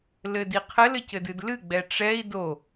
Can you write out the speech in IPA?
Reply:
lɘdiqʰɘl ɘcɘdɨdlɨ ɡ͡bɛʈ͡ʂɛi̯ do

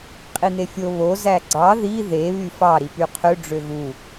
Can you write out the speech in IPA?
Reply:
qʼin̪efʲo βo zæɡ͡ǀɑ ði ðe βyfɑ ɾipyqʰø ɖ͡ʐøɣu

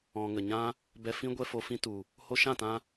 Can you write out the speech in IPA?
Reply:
ɔ̃˨ŋə˨ɲã˦ | bɛ˧fĩ˦ ɡʷɛ˦fo˧ fĩ˧tu˨ | ho˧ʃã˦˨tã˧

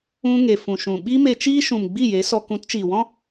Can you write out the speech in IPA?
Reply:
ũ˦ ŋe˨fũ˨ʃũ˨ ɓi˦me˧ t͡ʃiː˦ʃũ˨mɡ͡bi˦˨ je˨˦sɔ˧ kũ˨˦tt͡ʃiː˨wɔ̃˦

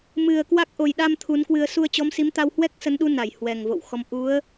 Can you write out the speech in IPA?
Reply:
mɨ˨˩ə̯ kwa˦˥k̚ ʔo˨˩jɗa˧m t̪ʰu˨˦nkwɨ˧ə̯ su˧ə̯t͡ɕɔ˨˦msi˨˦m t̪a˧whwɛ˦˥k̚sə˨˦nɗu˨˦ na˧˩jhwɛ˨˩ŋvo̰˧˨wxɔ˨˦m ʔu˨˦ə̯

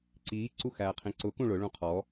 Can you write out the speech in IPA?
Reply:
ǀiː ǀuxæːqʰĩǀʊ kũɭʊ ɭũqʰɔ

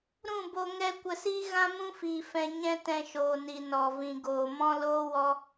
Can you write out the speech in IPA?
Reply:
ɾũ˦˨bo˧ ŋɛ˦ kʷə˧siː˦ ɣã˦mũ˦fiː˨ fɛ̃˨ ɲɛ̃˦tɛ̃˧ ʃoː˨ni˨ nɔ˨ vĩ˨ɡoː˨ mɔ̃˦loː˦wɔ˦

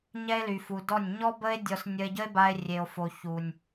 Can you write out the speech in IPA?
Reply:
ɲɛ˦e̯ly˨fu˨dɔ˦˨nʲ ɲɔ˦bə˦e̯ dʲɔ˧s nʲə˧e̯ɟə˦e̯ba˧e̯ rʲe˨o̯fo˨ çu˨nʲ

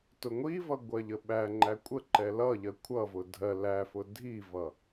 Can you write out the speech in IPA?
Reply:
tʊŋʷivʌ ɡʷɜʎəɓæŋ͡ǃæ kʷʼə ǃɛlʌʎɜ kʷʰʌvʊ dʱɜ læfʊ dʱivʌ

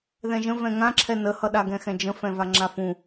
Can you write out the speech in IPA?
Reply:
ðɛ̃ʒə̃ vɛ̃ŋãǁʰɛ nəhʌɗa ɡɛ̃xɛ̃d͡ʒə̃ fɛ̃vaŋ͡ǁafũ

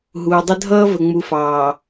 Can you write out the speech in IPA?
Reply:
ɦuː˨dˤə˦ dʱʌː˦və˨ŋ͡mu˨ fɑː˨

